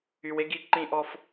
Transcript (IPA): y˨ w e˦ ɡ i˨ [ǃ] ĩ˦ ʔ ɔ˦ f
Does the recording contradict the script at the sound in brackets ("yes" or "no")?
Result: no